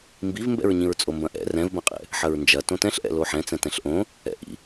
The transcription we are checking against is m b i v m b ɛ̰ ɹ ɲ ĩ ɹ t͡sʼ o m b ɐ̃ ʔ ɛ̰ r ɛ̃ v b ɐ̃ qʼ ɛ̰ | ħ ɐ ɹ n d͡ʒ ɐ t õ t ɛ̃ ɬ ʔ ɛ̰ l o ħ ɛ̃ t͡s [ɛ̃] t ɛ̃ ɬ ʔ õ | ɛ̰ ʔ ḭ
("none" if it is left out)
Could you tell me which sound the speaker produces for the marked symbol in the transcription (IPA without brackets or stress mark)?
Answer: ɛ̃